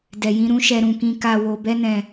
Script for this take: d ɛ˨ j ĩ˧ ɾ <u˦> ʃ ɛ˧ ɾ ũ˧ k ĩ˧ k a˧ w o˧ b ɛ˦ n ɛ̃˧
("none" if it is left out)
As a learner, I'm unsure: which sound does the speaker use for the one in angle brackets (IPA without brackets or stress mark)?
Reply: ũ˦